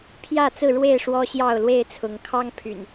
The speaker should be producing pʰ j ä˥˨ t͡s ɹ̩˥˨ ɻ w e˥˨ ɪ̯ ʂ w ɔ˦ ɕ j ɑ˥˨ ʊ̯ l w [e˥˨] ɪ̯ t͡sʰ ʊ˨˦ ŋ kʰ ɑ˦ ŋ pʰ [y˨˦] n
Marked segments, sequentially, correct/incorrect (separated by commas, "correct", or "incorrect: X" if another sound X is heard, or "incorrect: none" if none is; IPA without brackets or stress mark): correct, incorrect: y̰˨˩